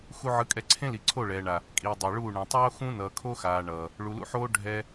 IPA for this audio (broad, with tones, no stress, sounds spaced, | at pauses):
x u˧ ʕ ɯ˨˦ kʼ ɛ˧ ǀʰ ẽ˦ l i˨ ǀʰ o˦˨ ɭ ɛː˨ ɳ a˨ | kʼ iː˨ dˤ ɛ˨ ɭ uː˦˨ ɳ ẽ˨ tˤ oː˦ x ũ˦ n ʌː˨ kʰ o˦ x aː˨ ɳ ʌː˨ | ɭ u˨ l ṵ˧ ħ oː˦ ɖʱ ɛ˦